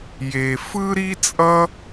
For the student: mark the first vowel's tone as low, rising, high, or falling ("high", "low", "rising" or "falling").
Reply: low